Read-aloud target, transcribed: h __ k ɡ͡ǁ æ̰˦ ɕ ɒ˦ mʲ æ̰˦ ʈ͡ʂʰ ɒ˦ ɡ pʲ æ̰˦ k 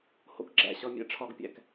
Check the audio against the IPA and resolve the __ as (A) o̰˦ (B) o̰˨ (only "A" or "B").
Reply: A